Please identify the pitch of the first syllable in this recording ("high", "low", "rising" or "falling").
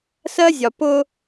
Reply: high